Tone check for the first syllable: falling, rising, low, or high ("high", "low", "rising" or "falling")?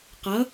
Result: rising